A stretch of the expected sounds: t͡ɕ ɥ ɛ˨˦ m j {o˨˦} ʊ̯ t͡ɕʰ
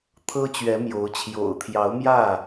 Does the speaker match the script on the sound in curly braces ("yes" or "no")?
yes